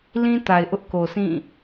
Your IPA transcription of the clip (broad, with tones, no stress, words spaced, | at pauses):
lĩ˦ ta˨ɪ̯ʔʊ˦ʔko˨sʰĩ˦˨